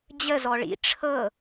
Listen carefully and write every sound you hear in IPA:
d͡ʑə zɔɭḭ ʈ͡ʂʰɤ

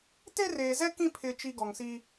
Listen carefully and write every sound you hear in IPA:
te˦reː˨zɛ˦ kĩ˦ pʰɪ˨t͡ʃi˨ ɡɔ˨ŋsi˦

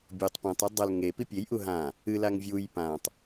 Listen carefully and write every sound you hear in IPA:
bʲutˤ pũtˤɨ dˤɐl ŋe pipʲejʔu ɦã | ɨlaŋ vʲuj pãtˤ

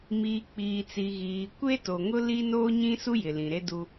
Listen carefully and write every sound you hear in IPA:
miː˨k͡piː˨t͡si˨ ɣiː˨ kʷe˦to˨ŋʊ˦ li˦ noː˦ɲĩ˦su˦ jɪ˨lĩ˨ɾe˦du˦

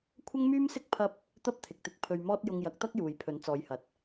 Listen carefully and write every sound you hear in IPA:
kʷʰɐ˥ŋmyː˥msɪ˥k̚ pʰɐ˥p̚ | t̪ɐ˥p̚t̪ʰɪ˨k̚t̪ɪ˧k̚ pʰɵ˧ɥmɔː˥t̚ jʊ˧ŋjɐ˨˥k̚t̪ɐ˥k̚ juː˨jpʰɵ˨˥nt͡sɔː˨˧jhɐ˨t̚

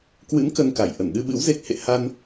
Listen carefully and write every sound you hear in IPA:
kwɨ̰˧˥n kə˧nka˧˩j ʔə˧˩nɗɨ˧ɓɨ̰˧˥w ze˦˥k̚hḛ˧˨ ha˧n

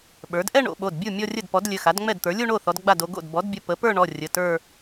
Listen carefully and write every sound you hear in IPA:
ɓə˞˩˥d ʔɛ˥˧ ɳo̰˩˧ɓo˩˧˩dbʲu˥˩ mʲɔ˥˧rʲə˥˩dpɔ˩˥d lʲɘ˩˧˩ xa˩˥dŋ͡mɛ˥˩dt̪ə˞˩˥ lʲu˥˧ɳo˥˩θɔ˩˧d ɡ͡ba˥˩do˩˧ ɡo̰˥˩d bɔ˩˥dbʲə˩˧˩ pə˩˥pə˞˥˧ ɳɔ˩˧˩rʲə˩˧˩tə˞˥˧

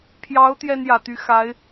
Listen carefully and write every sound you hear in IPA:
pʰjɑ˧˥ʊ̯ t̪jɛ˥njä˨˩t̪y˧˥ xa˧˥ɪ̯

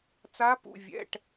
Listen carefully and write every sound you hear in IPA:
t͡sa˦˥pṵ˧˥˧vʲɛ̰˧˥˧ʈ

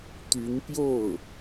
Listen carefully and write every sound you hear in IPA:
t̪y˧˥npjo˥˩ʊ̯

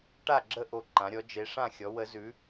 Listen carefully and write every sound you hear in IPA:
ʈa˥˨ɡ͡ǁə˥˨ ʔo˥˨ǃã˨˥ɾʲɔ˨˥ d͡ʒe˨˥ʂã˥˨xʲɔ˨˥ wə˨˥zʉ˨˥

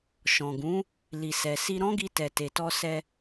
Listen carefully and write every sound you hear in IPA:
ʃɔ̃˨ ɡũ˨˦ | li˨sɛ˨si˧ ɾɔ̃˦ɡi˧ tɛ˨te˨tɔ˧sɛ˧

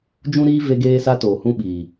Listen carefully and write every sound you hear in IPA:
d͡ʒũ˦ɾiː˦ ve˦ɡeː˦sa˦toː˨ hũ˦ɓiː˨

